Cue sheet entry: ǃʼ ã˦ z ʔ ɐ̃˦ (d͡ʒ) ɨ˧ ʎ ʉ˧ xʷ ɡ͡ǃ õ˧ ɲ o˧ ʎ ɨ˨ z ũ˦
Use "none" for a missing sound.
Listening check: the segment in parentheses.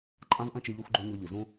t͡ʃ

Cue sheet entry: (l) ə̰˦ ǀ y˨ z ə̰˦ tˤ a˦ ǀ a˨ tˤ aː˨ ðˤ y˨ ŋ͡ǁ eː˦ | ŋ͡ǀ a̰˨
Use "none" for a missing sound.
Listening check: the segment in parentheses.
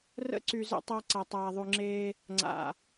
r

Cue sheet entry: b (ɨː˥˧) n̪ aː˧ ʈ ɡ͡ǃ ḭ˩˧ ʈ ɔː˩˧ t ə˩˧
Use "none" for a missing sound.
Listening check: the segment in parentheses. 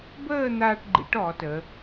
əː˥˧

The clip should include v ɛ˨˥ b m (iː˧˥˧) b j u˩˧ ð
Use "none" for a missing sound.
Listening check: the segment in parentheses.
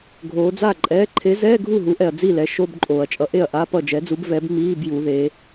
iː˧˥˧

